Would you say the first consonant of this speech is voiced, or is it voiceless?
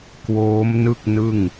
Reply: voiceless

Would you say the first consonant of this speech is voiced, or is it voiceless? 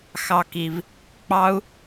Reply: voiceless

